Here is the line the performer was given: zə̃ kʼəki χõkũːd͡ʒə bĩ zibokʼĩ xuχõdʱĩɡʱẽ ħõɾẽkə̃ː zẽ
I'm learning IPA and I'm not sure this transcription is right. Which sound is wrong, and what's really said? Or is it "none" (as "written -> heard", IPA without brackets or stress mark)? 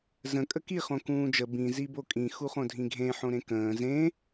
none